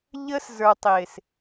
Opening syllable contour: high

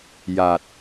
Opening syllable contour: low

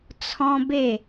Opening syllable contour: high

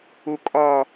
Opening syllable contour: low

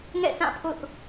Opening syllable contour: falling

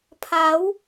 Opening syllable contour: rising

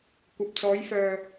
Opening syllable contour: low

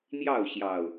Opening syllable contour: falling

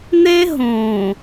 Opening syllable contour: high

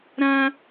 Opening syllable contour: high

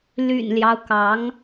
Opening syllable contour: low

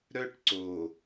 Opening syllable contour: high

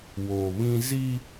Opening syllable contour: low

